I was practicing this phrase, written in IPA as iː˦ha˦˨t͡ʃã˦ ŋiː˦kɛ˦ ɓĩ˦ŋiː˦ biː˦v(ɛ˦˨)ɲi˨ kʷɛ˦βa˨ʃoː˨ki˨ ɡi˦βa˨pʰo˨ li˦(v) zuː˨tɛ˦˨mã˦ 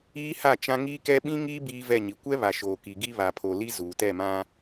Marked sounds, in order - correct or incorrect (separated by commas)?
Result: correct, incorrect